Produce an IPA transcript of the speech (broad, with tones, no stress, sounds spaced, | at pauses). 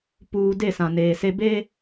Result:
p uː˨ d e˦˨ s ã˨ n eː˨ s e˦ b e˦